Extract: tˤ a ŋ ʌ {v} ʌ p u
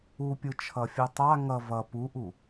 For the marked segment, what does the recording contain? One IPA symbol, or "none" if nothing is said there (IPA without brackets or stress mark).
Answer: v